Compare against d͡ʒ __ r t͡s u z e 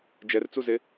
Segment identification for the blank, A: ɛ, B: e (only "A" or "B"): A